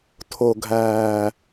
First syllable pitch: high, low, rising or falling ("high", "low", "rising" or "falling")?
low